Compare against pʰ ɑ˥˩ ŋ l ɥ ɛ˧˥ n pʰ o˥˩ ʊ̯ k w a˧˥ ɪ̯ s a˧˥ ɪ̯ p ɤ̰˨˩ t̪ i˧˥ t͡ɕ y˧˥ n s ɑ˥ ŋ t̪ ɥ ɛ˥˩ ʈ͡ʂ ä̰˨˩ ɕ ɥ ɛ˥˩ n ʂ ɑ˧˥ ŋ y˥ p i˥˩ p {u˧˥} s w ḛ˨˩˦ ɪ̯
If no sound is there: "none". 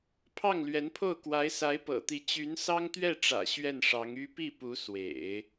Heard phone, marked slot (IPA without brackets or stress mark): u˧˥